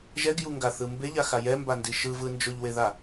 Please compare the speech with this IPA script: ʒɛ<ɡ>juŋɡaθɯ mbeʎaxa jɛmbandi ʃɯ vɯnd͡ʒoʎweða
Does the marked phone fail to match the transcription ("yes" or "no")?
no